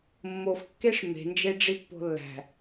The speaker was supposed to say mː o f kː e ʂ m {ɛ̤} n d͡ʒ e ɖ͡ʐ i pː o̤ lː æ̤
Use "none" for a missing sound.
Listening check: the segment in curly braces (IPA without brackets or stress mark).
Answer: e̤